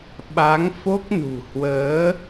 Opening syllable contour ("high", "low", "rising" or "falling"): rising